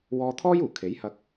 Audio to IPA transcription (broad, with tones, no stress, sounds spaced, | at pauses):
w ɔː˧ t̪ʰ ɔː˥ j uː˨˩ kʰ e˨˥ j h ɐ˧ k̚